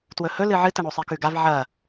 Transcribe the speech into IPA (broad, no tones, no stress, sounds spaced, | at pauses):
t w ɵ h ɵ l ɨ ʕ ɨ t ɐ ɳ o sˤ i k ʉ ɡ a v ʕ ɐ